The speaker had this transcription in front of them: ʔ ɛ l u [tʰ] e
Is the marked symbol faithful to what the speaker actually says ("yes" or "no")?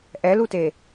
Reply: no